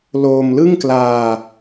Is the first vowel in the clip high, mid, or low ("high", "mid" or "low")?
mid